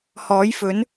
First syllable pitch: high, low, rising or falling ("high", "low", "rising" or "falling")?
rising